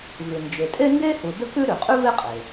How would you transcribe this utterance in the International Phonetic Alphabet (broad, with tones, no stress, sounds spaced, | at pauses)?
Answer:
v ʉ˩ n d͡ʒ e˩ tʼ e˥ n d e˥ h u˩ d ə˥ k ʉ˥ ɾ ʉ˩ qʼ ʉ˥ v e˥ qʼ e˩